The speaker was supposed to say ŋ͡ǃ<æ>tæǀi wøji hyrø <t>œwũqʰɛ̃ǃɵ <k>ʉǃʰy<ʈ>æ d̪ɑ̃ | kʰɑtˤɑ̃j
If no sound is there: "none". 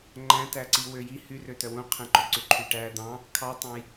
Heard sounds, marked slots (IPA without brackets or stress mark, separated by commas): æ̃, t, ǀ, ʈ